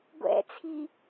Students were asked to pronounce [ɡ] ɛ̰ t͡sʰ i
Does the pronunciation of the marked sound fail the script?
yes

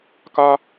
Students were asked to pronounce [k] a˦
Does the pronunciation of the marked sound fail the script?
no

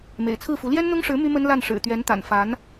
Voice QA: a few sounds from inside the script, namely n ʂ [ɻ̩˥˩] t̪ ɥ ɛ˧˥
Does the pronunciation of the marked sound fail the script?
yes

